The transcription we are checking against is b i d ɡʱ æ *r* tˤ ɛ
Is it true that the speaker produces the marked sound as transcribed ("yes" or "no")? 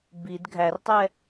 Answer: yes